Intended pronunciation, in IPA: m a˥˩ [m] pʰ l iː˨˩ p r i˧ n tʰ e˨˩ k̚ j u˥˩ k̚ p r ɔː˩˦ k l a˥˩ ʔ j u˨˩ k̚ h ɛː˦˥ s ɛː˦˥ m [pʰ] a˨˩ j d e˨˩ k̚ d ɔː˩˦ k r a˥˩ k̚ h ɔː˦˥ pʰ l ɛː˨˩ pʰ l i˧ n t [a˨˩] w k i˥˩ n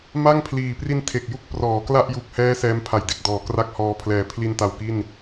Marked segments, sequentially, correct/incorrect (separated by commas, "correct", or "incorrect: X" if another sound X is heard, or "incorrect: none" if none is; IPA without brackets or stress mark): incorrect: ŋ, correct, correct